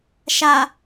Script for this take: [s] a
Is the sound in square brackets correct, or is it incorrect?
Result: incorrect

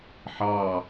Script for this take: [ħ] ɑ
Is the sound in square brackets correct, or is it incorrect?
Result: correct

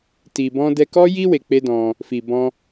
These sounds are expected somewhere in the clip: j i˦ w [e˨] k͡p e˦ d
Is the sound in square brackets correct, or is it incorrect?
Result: incorrect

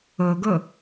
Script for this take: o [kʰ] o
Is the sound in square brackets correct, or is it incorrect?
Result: incorrect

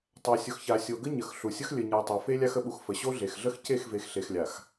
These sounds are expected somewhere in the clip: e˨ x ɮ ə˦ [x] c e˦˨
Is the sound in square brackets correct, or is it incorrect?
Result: correct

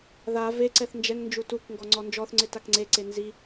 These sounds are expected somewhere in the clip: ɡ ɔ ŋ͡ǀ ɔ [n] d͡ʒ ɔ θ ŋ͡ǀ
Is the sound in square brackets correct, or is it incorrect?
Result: correct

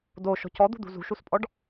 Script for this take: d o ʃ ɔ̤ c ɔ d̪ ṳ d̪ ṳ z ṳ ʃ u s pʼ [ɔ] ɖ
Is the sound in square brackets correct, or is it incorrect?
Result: correct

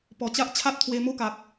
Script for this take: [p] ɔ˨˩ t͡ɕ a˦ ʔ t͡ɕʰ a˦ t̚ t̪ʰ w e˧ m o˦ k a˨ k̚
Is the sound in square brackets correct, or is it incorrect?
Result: correct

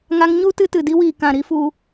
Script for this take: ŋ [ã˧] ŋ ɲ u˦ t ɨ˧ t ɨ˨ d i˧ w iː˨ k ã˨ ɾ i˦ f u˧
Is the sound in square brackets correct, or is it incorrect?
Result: incorrect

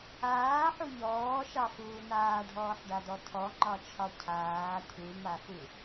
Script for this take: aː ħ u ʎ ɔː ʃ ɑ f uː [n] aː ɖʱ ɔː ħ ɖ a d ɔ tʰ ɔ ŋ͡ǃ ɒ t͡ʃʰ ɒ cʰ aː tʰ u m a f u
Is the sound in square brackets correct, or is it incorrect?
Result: correct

